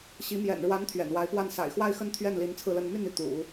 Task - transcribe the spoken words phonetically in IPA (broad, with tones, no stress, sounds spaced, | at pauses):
ɕ i˧˥ m j ɛ̰˨˩ n ɻ w a˧˥ n t̪ʰ ɥ ɛ̰˨˩ n w a˧˥ ɪ̯ p w a˥˩ n s a̰˨˩ ɪ̯ x w a˥˧ ɪ̯ x ə˥˧ n t̪ʰ ɥ ɛ˥˩ n l i˧˥ n t͡sʰ ɹ̩˥˧ l ə˥˧ n m y˥˧ n y˥˩ t̪ ṵ˨˩˦